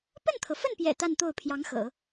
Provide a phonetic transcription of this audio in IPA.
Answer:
p ə˥˩ n t̪ʰ ɤ˩ f ə˥˩ n p j ɛ̰˨˩ t̪ a˥˧ n t̪ o˥˩ ʊ̯ pʰ j ɑ˧˥ ŋ x ɤ̰˨˩˦

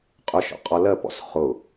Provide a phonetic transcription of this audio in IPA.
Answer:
qʼ ʊ ʃ ɔ̰ qʼ ɔ l ɜ p ɔ̰ s χ ʊ

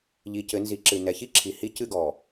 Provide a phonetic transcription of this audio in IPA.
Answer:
ʎ i˨ c ɘ˨˦ n z i˨˦ ǁ ɨ˨ n ɛ˨ ç i˦ ǁʰ i˨ h i˦ c ɨ˦˨ ɡ ɔ˨

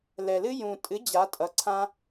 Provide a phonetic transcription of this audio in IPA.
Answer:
l ɛ˨ l ɨ˦ j ũ˨ tʼ ɨ˨˦ d͡ʑ a˨˦ tʼ ʌ˨˦ ǀʰ ã˦

